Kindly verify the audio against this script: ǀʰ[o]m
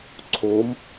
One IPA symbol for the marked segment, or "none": o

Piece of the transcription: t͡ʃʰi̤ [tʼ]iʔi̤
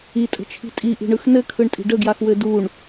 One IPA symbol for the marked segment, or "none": tʼ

